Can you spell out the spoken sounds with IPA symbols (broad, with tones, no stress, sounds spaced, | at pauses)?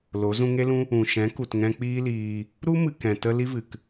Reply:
l o˨˦ z ũ˧ ŋ e˦ l ũ˦ | ũ˨ ʃ ɛ̃˨˦ k u˨ t ŋ ɛ̃˧ k͡p iː˦ l iː˧ | ɾ u˦ m ɨ˨ k ɛ̃˨ t ə˦ l i˦ v ɨ˨ k